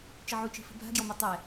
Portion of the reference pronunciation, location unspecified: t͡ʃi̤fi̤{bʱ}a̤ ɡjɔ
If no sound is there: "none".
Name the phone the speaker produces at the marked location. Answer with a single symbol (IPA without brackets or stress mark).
bʱ